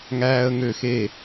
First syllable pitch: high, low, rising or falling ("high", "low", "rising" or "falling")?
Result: high